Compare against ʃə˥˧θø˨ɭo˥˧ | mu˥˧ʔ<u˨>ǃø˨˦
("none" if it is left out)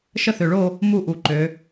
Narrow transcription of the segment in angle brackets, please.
u˨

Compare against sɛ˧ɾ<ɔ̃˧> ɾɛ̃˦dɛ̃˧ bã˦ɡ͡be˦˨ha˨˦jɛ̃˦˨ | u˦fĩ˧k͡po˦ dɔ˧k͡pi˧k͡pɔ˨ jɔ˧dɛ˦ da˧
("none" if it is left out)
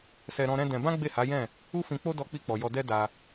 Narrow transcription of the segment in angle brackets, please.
ɔ̃˧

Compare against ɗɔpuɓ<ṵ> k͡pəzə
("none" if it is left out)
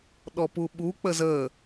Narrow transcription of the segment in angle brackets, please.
u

